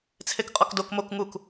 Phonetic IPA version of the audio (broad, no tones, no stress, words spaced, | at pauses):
t͡sʰekqʼɔkdok mok ŋuk